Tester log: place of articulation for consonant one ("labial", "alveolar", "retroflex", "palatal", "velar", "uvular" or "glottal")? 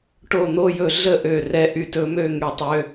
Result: retroflex